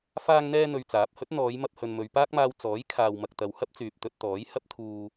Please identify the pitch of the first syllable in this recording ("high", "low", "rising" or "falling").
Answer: high